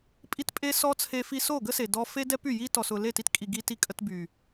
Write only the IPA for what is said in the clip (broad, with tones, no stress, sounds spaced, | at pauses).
pʼ i˦ t pʼ e˦ s ɔ˦ t͡sʰ e˧ f i˧ s o˦˨ ɡ ə˦ s e˨ d ɔ˧ f e˦ d ɛ˦ p y˦˨ j i˧ t ɔ˨ s ʊ˨ l e˦˨ t i˧ t kʼ i˨ ɡ i˧ t i˧ kʼ ə˧ t b y˨